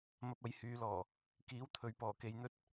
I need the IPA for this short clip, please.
m ɐ˧ p̚ ɐ˨˧ j h yː˨˧ l ɔː˨˩ | k iː˨˥ w t̪ʰ ɵ˨ ɥ p ɔː˨˩ k e˧ j n̪ ɵ˥ t̚

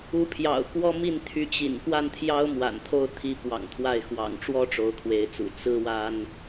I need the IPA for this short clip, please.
u˧˥ pʰ j ɑ̰˨˩ ʊ̯ k w ɔ˥ m i˥˩ n t̪ʰ y˧˥ t͡ɕ ḭ˨˩ n k w a˥˩ n t̪ʰ j ɑ˥ ʊ̯ m w a̰˨˩ n t̪ʰ o˥˩ ʊ̯ t̪ʰ i˧˥ p w ɑ̰˨˩ ŋ t̪ʰ w a˥˩ ɪ̯ x w ɑ̰˨˩ ŋ ʈ͡ʂ w ɔ˥ ʈ͡ʂ o˧˥ ʊ̯ kʰ w e˧˥ ɪ̯ t͡s ṵ˨˩ t͡s ɹ̩˥ w a˥ n

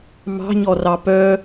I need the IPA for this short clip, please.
m ɑ̤ ɲ ɔ r ɑ p œ

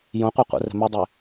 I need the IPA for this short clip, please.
j õ qʷ e qʷ ɛ̰ r ɛ̤ m ɘ dˤ e

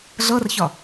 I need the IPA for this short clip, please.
ɮ ɤ r ç ɒ

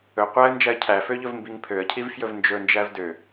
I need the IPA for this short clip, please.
ɵ qʷ æ ə̯ n d͡ʒ æ ə̯ cʰ æ f ø ʎ ɵ v m b i ŋ pʰ ø ə̯ cʰ i v f j ɵ v n d͡ʒ ɵ n d͡ʒ æ v d ø

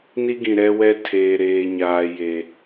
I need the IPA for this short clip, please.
n i˦ ɡ ĩ˨ ɾ ɛ˦ w ɛ˦ tʰ eː˨ ɾ eː˨ ɲ aː˨ j e˨

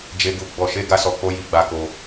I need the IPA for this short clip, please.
d͡ʒ e˧ ɡ u˧ ɡ͡b ɔ˧ ʃ e˦ ɡ a˦ s ɔ˧ k͡p o˦ j i˧ ɡ͡b a˧ k o˧

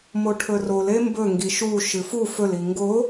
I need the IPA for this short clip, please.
m o ʈʰ ɵ r o l e m b ɵ ŋ ɡ i ʃ u ʃ ɨ f u f ɵ l i ŋ ɡ o

